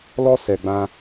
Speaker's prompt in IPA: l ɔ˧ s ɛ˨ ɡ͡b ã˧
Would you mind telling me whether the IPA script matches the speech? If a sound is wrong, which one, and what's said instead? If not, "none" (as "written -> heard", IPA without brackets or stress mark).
none